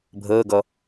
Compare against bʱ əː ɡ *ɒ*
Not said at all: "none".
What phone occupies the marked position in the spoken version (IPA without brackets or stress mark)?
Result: ʌ